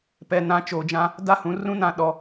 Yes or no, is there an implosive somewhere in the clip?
yes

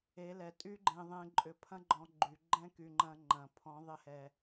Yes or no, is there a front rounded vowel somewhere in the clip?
yes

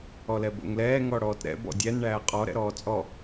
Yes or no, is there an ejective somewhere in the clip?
yes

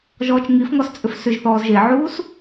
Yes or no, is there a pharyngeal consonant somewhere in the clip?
yes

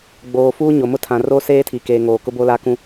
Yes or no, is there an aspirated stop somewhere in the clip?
yes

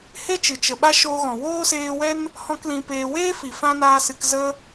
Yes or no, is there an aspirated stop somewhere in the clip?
no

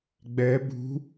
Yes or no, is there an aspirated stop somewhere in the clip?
no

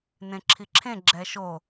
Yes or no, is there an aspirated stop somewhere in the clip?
yes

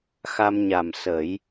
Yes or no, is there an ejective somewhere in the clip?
no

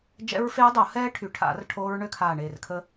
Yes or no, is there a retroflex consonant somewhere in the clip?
yes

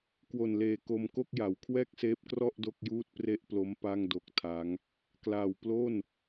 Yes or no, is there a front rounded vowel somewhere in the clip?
no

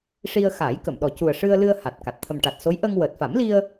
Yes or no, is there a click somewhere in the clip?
no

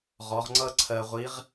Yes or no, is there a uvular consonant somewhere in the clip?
yes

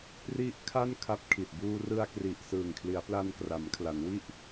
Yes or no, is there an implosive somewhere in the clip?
no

